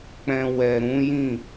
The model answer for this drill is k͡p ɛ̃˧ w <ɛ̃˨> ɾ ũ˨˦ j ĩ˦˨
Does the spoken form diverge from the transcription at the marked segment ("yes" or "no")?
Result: yes